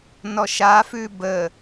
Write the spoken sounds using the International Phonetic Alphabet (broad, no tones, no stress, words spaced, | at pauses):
nɔʃafʉ bə